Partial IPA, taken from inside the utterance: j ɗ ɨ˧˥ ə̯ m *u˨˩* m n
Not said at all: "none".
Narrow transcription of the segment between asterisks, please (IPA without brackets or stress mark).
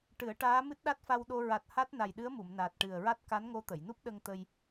u˨˩˨